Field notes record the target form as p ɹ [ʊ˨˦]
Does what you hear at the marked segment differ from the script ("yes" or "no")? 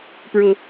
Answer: yes